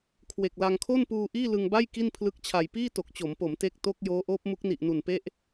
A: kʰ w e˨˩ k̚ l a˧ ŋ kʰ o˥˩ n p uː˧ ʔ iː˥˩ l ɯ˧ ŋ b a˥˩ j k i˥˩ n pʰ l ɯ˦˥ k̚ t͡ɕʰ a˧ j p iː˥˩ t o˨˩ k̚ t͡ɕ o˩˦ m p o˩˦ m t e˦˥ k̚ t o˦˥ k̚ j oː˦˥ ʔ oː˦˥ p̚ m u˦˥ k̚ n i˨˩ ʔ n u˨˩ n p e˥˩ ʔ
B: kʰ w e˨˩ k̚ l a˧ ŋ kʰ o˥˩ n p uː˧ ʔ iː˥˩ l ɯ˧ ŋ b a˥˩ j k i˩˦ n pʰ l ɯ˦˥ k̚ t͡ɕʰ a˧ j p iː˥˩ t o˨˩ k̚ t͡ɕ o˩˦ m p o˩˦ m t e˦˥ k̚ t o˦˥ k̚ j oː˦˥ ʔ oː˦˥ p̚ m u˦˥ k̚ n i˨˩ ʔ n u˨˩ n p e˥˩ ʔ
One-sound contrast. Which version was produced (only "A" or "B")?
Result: A